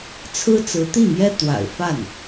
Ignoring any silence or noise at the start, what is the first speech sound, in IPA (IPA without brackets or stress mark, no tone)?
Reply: t͡sʰ